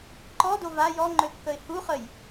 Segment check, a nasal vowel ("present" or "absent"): absent